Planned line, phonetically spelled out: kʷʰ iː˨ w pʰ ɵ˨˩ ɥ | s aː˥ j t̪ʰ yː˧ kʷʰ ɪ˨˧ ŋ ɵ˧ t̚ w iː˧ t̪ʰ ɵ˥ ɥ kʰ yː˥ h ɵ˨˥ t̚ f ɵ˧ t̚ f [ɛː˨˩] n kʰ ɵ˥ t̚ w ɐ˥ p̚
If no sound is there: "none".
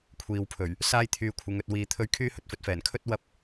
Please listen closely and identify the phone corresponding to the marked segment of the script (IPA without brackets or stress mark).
ɛː˨˩